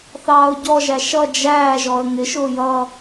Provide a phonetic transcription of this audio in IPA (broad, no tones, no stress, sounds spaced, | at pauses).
θ ɑː ʊ̯ ɟ ɔ ʒ æ ʃ ʌ d͡ʒ æː ʒ ɔ ə̯ ŋ ɪ ʃ ʊː j ʌ